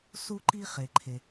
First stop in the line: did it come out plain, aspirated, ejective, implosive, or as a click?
click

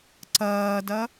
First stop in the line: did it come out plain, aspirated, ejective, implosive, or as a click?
click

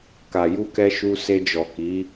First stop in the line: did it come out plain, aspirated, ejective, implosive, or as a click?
plain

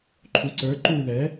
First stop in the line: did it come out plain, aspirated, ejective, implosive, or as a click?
click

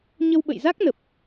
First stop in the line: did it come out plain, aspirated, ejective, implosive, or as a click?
implosive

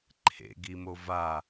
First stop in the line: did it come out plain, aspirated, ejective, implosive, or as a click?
click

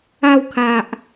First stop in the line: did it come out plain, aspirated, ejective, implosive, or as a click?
aspirated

